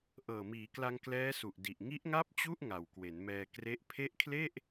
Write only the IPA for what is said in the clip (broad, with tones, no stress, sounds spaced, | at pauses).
ʔ ɤː˨˩ m iː˩˦ k l a˧ ŋ k l ɛː˦˥ s u˨˩ ʔ d i˨˩ ʔ ŋ i˦˥ ʔ ŋ a˥˩ p̚ t͡ɕ u˥˩ ʔ ŋ a˨˩ w k w e˩˦ n m ɛː˧ k r e˦˥ ʔ pʰ e˦˥ ʔ kʰ l e˥˩ ʔ